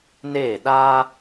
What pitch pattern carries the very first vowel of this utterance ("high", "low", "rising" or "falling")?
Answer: falling